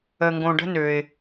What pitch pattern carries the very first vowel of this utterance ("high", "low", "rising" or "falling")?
low